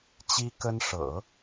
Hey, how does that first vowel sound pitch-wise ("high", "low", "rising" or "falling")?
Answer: high